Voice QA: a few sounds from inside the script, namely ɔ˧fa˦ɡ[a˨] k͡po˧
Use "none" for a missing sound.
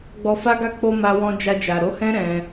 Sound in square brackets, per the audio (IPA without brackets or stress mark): a˦˨